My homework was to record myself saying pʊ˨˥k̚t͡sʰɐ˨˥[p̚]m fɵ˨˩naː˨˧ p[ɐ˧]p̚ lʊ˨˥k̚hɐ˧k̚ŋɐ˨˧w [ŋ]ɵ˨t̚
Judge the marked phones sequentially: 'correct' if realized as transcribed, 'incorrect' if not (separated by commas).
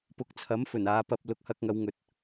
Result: incorrect, correct, correct